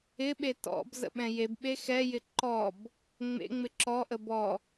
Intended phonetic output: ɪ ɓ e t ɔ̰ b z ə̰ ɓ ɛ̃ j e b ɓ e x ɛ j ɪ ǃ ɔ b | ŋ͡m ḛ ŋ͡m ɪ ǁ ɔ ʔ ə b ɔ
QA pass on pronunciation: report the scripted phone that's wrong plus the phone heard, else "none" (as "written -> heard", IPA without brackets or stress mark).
none